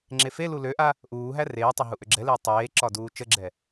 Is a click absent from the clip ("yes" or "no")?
no